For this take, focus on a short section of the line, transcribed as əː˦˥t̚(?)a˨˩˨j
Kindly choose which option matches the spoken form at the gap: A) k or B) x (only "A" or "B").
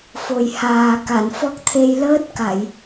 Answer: A